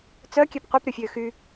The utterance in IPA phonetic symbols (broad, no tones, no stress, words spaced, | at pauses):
t͡sœkʲɛp qʷipɾʲɔfʲøː xy